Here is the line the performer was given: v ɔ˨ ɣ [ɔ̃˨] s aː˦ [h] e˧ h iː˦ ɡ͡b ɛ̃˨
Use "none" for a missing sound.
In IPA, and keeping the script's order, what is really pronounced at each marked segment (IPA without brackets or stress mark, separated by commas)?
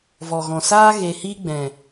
ɔ̃˨, ɣ